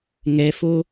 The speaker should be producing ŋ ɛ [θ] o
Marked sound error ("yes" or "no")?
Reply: yes